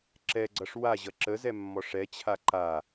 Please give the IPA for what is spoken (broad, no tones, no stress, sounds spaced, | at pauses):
ǁ ɛ ɡ͡ǀ ʌ ʂ w a ʑ ʌ ǁ ə z ɛ mː ɔ ʂ ɛ t͡ɕʰ a ǃ a